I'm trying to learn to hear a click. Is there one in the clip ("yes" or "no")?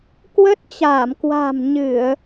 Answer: no